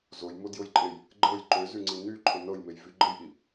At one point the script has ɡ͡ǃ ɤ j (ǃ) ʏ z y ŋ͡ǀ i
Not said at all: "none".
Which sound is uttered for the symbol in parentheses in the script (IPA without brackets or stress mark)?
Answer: ǃ